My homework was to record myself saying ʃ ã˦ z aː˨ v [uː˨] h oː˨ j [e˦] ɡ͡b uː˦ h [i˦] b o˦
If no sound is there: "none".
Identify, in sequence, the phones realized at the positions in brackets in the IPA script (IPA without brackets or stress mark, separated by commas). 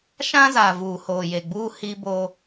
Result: uː˨, e˨, i˦